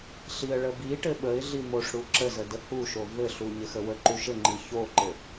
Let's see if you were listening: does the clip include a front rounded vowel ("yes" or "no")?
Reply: no